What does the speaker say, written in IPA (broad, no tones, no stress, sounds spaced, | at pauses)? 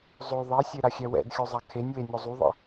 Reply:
zˤ o ðˤ ɛ sʲ e ɾ a xʲ ɛ w ɛ̰ d xʲ o zˤ a kʰ e nʲ w e nʲ o zˤ u ðˤ ɛ̰